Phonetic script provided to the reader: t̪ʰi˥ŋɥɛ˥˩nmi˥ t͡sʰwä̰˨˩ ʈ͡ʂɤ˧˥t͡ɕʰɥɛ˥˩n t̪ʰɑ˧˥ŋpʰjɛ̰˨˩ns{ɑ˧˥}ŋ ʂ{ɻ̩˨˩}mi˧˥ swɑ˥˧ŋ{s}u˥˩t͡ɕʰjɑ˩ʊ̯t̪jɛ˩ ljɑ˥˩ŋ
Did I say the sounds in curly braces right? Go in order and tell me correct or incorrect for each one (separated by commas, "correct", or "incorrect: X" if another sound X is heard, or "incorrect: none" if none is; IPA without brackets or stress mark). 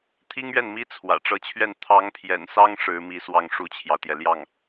incorrect: ɑ˥, incorrect: ɻ̩˧˥, incorrect: ʂ